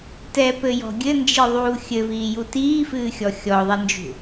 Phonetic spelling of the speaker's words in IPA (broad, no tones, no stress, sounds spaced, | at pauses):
t ɛ p ɘ j ɔ̤ ɡʲ ɘ n d͡ʒ i ðˤ uː xʲ ɘ v iː j u t iː f ɨː xʲ ɔ xʲ ɔ ðˤ ɛ n d͡ʒ ṳ